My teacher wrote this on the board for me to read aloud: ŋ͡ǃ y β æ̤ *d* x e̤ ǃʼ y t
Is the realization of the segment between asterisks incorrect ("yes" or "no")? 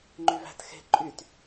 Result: yes